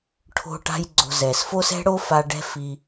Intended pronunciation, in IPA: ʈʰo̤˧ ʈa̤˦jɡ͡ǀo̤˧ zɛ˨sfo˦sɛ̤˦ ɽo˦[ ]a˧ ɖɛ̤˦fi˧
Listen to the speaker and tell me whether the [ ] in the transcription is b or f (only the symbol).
f